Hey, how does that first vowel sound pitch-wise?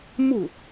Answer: falling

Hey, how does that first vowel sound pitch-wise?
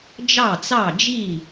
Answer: falling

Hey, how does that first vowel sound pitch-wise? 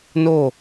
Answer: falling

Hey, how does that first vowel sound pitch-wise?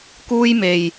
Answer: high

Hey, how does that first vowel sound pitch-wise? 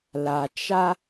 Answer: low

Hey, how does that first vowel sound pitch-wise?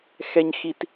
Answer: high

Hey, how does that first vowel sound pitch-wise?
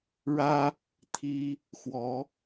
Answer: high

